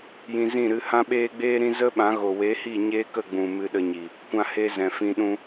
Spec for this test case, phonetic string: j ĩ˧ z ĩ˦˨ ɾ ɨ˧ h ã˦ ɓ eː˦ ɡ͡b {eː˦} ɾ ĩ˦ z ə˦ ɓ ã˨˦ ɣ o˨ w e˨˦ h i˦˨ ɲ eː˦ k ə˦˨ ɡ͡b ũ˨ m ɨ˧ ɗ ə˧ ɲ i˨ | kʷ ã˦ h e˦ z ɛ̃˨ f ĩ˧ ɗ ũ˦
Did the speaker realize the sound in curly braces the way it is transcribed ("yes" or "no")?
yes